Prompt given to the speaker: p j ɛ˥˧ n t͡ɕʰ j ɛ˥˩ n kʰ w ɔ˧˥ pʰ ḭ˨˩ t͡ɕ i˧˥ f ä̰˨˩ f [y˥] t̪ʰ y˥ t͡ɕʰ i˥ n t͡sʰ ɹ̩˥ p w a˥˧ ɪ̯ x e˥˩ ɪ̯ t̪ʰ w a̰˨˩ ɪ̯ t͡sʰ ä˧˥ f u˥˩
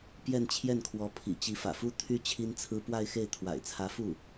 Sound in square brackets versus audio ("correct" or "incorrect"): incorrect